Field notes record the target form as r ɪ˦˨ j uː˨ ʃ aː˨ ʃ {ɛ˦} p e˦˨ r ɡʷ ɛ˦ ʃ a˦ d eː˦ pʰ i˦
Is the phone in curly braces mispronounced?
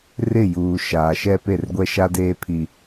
no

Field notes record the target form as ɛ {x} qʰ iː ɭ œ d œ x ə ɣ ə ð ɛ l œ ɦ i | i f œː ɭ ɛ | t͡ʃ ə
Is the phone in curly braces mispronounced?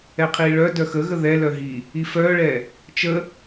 yes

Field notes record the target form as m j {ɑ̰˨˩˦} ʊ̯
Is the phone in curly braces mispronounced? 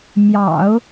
no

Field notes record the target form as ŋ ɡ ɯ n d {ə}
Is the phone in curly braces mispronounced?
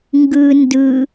yes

